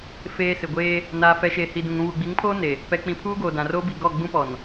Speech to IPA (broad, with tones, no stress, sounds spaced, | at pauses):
f eː˨ s ɪ˨ ɡʷ eː˦ | n aː˨ f ɛ˨ ʃ eː˨ h i˨ d ũ˨ ŋ ũ˨ β u˨ ɡ͡b i˨˦ ŋ pʰ oː˦ n e˨ | p ɛ˨ k͡p ĩ˨ pʰ uː˦ ɡ oː˨ d ã˨ r oː˦ b i˨ ɡ ɔ˦˨ ɡ͡b ũ˦ p ɔ˨ n